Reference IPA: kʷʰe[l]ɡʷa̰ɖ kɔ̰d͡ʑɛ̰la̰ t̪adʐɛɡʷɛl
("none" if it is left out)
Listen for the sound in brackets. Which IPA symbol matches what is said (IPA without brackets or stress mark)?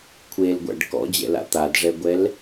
l